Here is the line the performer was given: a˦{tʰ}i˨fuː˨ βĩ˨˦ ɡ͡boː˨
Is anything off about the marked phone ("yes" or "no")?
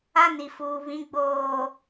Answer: yes